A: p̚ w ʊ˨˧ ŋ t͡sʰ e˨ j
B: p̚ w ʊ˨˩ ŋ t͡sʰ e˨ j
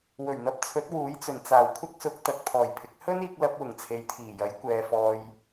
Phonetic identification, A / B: B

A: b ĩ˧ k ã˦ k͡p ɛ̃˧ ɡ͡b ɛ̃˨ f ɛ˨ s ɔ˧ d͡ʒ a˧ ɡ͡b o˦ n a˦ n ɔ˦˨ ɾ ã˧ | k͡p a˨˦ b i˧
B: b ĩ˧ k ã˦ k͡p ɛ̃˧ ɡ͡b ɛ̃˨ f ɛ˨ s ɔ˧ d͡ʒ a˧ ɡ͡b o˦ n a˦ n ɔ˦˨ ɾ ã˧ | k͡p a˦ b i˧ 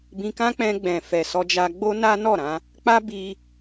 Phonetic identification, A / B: B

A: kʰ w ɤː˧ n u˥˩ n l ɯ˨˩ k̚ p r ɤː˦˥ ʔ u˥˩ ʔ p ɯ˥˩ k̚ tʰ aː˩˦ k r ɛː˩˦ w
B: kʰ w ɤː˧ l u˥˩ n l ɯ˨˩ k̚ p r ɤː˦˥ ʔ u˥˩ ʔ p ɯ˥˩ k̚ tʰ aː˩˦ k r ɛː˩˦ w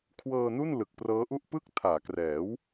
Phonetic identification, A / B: A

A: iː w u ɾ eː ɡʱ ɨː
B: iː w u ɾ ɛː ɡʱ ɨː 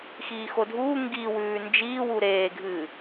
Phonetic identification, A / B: A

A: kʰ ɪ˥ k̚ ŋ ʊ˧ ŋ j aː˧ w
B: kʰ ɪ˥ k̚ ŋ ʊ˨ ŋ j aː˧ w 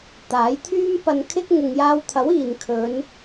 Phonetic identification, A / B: B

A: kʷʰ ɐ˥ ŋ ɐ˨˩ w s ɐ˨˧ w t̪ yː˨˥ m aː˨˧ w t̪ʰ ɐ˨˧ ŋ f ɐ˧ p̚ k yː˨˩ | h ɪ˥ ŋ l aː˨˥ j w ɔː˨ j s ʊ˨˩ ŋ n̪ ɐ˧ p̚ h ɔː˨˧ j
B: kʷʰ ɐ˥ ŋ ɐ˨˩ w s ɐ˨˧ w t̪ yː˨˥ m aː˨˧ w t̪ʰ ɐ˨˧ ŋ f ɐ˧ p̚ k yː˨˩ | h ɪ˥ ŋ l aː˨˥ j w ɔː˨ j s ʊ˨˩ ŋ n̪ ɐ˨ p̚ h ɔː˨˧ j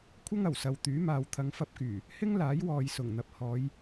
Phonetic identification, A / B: B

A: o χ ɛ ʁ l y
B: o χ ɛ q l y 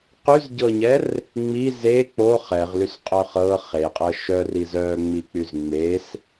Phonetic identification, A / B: A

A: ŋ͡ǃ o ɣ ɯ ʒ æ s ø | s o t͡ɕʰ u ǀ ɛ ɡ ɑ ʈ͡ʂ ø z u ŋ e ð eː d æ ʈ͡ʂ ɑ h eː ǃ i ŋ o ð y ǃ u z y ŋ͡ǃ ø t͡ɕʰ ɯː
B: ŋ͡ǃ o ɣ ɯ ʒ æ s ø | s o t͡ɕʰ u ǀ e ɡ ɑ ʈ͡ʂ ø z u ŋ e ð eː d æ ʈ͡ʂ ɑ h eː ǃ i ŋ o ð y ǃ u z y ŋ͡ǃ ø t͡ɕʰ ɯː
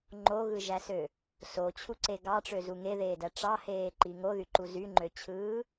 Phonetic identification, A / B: B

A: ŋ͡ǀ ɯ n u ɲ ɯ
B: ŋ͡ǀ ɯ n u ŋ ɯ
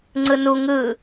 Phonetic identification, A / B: B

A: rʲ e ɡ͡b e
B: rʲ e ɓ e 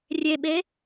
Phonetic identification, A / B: B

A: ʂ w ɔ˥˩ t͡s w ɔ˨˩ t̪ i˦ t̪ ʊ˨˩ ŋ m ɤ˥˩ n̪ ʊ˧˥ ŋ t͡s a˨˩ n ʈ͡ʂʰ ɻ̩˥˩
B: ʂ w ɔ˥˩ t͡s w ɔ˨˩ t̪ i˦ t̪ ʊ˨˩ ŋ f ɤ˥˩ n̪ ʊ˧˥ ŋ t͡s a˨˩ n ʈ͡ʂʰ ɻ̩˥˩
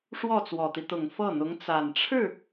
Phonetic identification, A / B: B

